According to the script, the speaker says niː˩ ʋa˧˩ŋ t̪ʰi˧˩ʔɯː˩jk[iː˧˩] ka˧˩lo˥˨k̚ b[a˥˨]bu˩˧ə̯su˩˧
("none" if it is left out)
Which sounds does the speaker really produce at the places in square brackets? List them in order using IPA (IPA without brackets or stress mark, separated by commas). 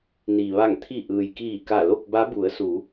iː˧˩, a˧˥